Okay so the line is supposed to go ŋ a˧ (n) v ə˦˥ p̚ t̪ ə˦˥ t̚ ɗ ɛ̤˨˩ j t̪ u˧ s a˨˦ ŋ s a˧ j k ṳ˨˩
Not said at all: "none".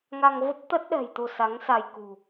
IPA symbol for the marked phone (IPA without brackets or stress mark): ŋ